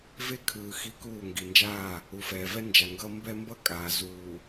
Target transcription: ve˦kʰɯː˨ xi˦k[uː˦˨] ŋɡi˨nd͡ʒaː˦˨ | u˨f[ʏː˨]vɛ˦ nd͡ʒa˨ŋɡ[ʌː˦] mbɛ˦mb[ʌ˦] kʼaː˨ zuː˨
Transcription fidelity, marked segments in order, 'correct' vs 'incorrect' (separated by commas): correct, incorrect, correct, correct